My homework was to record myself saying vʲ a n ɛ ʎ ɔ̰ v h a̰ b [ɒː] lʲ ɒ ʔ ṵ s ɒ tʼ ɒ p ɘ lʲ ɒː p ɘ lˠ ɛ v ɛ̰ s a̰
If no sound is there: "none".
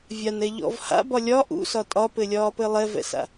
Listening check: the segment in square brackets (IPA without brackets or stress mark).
ɒ